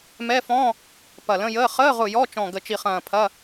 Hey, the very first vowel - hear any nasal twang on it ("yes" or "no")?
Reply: no